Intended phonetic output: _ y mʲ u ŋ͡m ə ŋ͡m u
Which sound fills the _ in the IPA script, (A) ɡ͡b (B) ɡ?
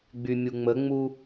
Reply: A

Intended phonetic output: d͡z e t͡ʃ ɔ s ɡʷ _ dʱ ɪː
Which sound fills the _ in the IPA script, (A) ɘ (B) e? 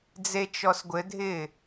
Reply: A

